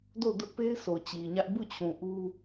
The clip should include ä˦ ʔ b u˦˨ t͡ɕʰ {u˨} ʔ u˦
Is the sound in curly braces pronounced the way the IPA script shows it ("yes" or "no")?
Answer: no